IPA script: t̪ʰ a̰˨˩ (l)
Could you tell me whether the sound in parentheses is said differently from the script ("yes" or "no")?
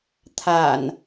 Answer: yes